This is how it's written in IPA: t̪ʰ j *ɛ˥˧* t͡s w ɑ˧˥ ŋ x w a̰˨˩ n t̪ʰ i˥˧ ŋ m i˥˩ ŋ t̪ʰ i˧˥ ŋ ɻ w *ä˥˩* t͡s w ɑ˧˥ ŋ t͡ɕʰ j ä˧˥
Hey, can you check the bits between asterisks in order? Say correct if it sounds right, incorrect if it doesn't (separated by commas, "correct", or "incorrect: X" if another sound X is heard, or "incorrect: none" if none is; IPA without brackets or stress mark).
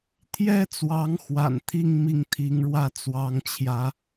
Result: incorrect: ɛ˥, correct